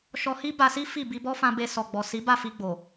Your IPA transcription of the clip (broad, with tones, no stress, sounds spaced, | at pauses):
ʃ ɔ˧ h i˦ b a˧ s i˦ f i˦˨ b i˧ b ɔ˦ f ã˧ b e˧ s ɔ˨ ɡ͡b ɔ˨ s i˨˦ b a˦˨ f i˧ ɡ͡b o˨